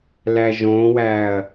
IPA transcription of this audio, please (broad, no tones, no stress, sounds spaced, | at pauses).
l æ ʒ õ w æ ɐ̯